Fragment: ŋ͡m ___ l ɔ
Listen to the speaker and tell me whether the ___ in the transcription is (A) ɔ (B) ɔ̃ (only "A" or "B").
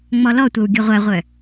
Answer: A